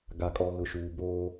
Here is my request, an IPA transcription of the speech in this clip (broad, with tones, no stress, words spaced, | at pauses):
ɡa˨kʼɔ˨ɣʊ˨ʃuː˨ boː˦